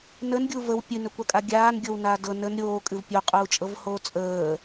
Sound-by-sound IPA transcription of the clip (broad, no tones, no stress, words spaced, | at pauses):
nənɡʲu vəw pʲɨnɵkʷakʼa ɡʲaːnɡʲɤwnaː dɤ nən ɾʲoːkʼɨv pʲoqʼuːt͡ʃʼɤvhoː t͡sʼəː